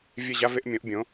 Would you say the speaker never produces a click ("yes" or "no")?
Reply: yes